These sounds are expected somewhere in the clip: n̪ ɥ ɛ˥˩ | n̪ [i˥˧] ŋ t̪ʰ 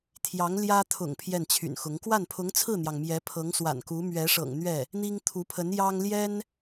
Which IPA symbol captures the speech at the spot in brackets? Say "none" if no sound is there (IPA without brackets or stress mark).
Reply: i˥